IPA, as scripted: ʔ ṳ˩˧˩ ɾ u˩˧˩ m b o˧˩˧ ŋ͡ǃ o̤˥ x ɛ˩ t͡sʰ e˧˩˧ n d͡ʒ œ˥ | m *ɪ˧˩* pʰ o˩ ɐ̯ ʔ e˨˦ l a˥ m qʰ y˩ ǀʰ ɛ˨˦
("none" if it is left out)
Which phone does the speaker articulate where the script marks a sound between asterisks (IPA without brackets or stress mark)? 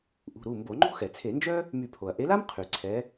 y˧˩